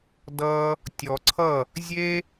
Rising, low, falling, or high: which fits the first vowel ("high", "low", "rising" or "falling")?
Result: high